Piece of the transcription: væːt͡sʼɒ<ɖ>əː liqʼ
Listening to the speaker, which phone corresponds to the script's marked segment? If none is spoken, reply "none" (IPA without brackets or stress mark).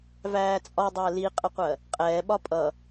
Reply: dˤ